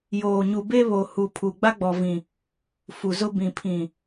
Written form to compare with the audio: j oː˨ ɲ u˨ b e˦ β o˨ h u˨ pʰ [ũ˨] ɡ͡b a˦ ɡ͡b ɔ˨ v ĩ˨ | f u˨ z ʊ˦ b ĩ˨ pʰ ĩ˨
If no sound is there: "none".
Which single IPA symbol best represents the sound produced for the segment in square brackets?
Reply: u˨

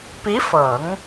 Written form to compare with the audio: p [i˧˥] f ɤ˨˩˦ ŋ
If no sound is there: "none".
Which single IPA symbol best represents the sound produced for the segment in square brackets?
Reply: i˧˥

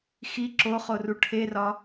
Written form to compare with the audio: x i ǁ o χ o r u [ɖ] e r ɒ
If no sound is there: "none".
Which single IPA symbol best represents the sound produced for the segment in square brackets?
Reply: ʈʰ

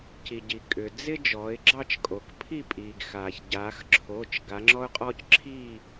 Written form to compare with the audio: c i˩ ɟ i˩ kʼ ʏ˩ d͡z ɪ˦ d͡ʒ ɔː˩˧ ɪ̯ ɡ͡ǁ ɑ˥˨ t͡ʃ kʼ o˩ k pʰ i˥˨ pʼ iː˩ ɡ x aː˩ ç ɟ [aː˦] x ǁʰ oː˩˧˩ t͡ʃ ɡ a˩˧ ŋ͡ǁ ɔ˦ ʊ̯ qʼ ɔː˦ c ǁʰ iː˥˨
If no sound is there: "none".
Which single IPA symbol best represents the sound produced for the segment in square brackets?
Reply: aː˩˧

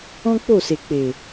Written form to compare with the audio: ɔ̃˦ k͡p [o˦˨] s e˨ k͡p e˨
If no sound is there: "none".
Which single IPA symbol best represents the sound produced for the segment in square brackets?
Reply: o˦˨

